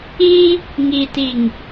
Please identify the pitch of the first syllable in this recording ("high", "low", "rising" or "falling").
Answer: high